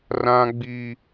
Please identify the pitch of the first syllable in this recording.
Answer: high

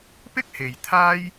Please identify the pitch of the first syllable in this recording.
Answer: high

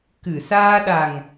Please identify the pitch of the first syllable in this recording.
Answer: low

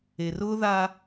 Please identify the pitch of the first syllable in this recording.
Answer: low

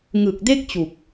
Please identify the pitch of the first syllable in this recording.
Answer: low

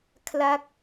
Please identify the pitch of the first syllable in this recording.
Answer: falling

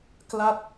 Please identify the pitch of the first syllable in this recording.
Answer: falling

